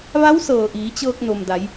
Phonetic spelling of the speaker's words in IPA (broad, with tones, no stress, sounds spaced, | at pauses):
ʋ a˧˥ w s ɤː˩ ʔ iː˩˧ t͡ɕ ɤː˧ k̚ n o˩ m d a˩˧ j